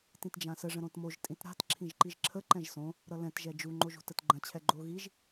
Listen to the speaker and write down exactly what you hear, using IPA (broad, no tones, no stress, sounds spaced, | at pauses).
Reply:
t ĩ t d͡ʒ ã s ə ʐ ə̃ ɾ õ t m o ʒ tʼ ĩ t ɾ a̤ t ǁʰ ĩ ʒ ǃ i ʒ ǁʰ ə ǃ ɛ̃ ʒ s õ | ɾ ʌ l ɛ̃ t ʒ ɛ d͡ʒ u ŋ͡ǃ o ʒ ṳ t ə t ɡ͡ǃ ə̃ t͡ɕʰ ɛ ɡ͡ǃ o ɣ i ʒ